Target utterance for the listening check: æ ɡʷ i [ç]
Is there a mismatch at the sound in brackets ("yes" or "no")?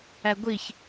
no